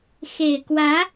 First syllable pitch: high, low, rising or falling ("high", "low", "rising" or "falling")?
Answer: low